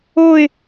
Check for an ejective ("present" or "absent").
absent